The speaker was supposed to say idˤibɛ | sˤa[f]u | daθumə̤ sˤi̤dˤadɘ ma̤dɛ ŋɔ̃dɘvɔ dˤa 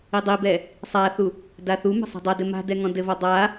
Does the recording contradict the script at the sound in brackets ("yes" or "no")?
yes